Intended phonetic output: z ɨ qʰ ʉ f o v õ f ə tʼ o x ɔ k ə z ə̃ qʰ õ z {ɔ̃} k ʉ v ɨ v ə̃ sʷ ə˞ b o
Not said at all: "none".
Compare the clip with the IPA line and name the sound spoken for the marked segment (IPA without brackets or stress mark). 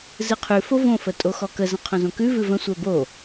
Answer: õ